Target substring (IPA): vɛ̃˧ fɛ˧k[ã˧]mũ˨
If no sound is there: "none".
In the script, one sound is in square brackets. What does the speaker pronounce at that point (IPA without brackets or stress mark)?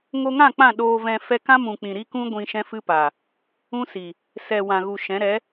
ã˦